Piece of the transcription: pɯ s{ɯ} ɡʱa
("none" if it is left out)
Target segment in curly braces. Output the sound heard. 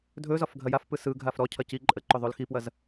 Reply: ɯ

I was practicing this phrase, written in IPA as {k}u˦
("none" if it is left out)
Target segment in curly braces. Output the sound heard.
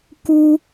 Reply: k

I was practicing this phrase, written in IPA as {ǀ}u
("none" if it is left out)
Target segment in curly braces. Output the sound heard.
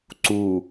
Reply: ǀ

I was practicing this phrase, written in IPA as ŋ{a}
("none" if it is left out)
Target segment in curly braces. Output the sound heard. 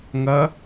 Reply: ɐ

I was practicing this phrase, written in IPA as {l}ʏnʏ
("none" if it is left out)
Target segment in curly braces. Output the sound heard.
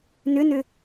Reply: n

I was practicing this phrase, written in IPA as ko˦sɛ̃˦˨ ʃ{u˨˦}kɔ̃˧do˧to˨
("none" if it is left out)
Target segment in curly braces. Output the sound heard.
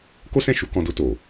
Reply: u˧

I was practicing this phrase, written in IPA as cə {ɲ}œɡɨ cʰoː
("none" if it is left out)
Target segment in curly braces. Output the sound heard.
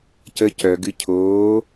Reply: c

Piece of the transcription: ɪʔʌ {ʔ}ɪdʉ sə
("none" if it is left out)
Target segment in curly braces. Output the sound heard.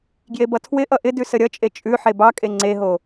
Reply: ʔ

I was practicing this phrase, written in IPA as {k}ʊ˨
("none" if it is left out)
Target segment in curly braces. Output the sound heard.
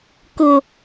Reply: k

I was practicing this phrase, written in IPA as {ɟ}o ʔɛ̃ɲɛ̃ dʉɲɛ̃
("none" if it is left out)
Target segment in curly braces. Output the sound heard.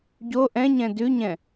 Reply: ɟ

